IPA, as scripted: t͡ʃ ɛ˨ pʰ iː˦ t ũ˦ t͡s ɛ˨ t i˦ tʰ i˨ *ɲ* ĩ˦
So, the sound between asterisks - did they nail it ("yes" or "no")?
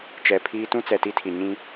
yes